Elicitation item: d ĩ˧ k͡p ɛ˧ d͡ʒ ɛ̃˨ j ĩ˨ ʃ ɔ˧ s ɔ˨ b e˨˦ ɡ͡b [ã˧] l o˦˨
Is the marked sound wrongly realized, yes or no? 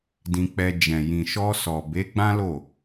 yes